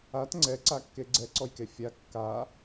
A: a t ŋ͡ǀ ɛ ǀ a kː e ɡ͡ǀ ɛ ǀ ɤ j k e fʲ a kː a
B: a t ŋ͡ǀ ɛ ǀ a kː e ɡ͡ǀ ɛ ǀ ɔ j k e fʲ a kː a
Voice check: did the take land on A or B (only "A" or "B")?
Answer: B